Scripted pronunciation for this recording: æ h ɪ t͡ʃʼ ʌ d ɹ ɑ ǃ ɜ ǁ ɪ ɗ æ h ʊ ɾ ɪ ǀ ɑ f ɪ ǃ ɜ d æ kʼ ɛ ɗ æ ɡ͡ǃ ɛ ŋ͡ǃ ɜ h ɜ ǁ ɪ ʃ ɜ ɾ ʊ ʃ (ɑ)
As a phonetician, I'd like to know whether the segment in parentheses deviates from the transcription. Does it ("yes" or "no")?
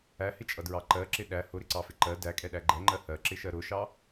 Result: no